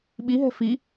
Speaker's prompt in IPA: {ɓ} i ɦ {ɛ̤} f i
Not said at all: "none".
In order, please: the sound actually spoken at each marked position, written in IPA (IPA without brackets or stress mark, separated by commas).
ɓ, ɛ̤